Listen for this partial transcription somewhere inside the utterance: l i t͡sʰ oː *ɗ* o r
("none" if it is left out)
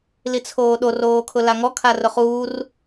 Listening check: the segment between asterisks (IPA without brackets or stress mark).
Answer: ɗ